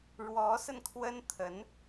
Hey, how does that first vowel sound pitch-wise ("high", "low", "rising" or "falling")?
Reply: rising